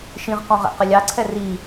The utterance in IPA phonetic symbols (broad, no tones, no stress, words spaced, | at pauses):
ʃĩʁqɔ̃ ʁɛ̰qɘlʲɑǀʰɛ ri